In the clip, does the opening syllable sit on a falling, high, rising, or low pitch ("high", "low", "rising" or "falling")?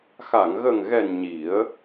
low